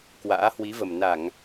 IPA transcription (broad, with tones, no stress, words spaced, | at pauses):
kwa̰ː˧˥hwi˨˦və˨˩m na˧˩˨ŋ